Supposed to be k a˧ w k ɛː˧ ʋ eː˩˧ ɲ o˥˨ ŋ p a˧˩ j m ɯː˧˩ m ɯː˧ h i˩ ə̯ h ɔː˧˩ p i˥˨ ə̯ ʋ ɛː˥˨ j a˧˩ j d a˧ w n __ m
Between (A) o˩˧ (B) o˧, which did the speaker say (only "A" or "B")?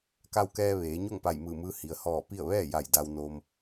B